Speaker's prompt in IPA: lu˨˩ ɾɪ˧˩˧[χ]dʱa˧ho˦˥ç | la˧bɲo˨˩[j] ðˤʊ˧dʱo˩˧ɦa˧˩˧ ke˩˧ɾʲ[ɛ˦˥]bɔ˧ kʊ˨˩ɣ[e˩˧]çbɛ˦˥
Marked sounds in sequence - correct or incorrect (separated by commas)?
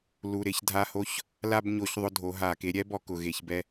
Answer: incorrect, incorrect, correct, correct